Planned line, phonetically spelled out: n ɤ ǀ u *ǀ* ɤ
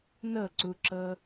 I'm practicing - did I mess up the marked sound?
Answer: yes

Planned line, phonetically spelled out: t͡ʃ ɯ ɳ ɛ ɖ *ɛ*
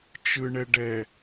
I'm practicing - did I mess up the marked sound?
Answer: no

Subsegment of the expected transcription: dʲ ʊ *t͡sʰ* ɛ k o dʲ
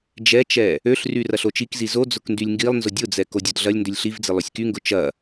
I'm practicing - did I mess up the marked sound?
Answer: yes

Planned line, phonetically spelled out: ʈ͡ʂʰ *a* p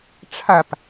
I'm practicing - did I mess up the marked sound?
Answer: no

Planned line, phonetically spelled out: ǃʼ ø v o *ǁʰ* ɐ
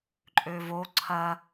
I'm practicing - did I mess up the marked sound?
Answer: yes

